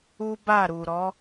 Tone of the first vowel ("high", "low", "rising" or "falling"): high